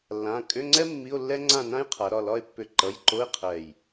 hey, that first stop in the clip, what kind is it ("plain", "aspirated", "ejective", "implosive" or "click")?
ejective